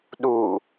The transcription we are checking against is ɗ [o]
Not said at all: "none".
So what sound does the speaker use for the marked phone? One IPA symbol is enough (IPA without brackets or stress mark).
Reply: u